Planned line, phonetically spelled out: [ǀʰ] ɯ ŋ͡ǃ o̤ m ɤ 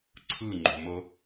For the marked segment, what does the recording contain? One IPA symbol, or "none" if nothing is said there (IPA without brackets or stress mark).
ǀʰ